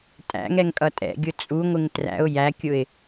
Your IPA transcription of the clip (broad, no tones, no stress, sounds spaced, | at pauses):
tʼ æ̰ ŋ ɛ ŋ kʼ ʌ tʼ ɛ̰ ɡʲ ʊ t͡sʼ u ŋʷ ɪ ŋ t r æ̰ ʊ̯ j æ kʲ ʊ ɪ̯